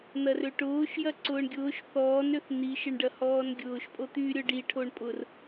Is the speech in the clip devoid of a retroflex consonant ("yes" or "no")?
no